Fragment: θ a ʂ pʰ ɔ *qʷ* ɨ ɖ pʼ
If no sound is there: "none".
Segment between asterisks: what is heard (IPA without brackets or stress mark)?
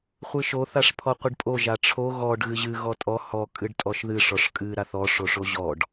qʷ